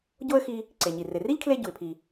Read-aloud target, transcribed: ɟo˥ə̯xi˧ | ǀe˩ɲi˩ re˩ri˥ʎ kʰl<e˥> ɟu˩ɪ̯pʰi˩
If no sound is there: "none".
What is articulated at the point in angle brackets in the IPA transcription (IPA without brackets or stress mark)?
e˥